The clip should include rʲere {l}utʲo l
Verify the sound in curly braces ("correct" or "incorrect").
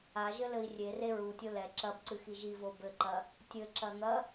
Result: incorrect